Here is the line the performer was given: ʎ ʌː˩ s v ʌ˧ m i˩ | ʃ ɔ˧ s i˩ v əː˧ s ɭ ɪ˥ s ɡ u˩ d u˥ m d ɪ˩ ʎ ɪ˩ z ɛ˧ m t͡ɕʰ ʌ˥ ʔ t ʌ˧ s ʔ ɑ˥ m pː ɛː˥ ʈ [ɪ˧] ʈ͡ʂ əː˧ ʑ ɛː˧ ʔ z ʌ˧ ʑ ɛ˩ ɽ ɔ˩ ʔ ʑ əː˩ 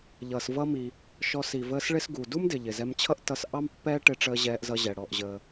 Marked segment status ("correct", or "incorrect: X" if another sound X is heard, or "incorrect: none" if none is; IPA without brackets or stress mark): correct